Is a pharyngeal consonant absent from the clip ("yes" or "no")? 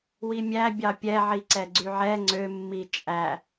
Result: no